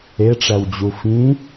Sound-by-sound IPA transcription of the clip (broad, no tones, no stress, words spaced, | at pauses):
eʈ͡ʂæwd͡ʑu fĩ